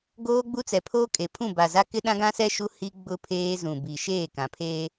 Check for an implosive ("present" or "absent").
present